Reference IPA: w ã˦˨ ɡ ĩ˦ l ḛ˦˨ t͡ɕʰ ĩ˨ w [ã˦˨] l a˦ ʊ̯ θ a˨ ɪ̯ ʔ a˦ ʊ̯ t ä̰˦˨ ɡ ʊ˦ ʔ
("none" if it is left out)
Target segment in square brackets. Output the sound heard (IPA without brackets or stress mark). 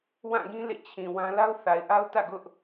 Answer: ã˦